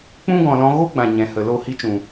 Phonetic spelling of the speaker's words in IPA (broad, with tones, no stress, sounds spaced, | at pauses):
k͡p ũ˦ ɡ ɔ̃˨ l ɔ̃˧ ɣ o˦ ɡ͡b ã˨ ɲ ɛ̃˨ h ə˨ l o˦˨ h i˦ t͡ʃ ũ˨